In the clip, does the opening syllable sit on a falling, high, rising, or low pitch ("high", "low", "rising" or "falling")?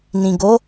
low